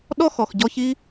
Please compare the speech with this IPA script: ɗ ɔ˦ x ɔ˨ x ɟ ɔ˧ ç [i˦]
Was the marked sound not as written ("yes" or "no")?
no